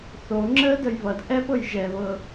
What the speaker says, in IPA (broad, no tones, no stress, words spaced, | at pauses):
θo ŋ͡ǁədəj βʌd ʔɛpɤj ʒɛβɤ